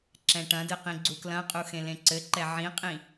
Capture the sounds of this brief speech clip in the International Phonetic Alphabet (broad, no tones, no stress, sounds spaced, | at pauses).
ǁ ɛ̃ ʈ ɐ̃ d ɨ q ĩ ɡ͡ǀ u k l ɐ̃ qʼ u x ẽ l ẽ ǀ ɘ ǃ ɛ ʕ ĩ qʼ ĩ